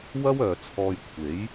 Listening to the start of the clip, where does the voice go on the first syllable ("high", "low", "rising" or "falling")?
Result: high